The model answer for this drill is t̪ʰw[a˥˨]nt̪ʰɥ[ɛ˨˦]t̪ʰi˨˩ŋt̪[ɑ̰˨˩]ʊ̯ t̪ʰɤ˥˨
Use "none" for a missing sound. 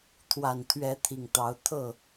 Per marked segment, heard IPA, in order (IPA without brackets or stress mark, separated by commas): a˨˩, ɛ˨˦, ɑ˨˦